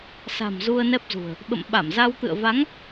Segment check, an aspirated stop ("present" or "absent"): absent